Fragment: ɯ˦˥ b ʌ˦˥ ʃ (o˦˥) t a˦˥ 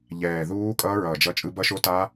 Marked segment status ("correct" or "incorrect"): correct